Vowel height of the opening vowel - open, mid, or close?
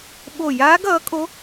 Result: mid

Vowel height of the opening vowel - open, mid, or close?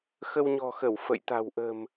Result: mid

